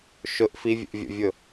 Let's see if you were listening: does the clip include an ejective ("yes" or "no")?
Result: no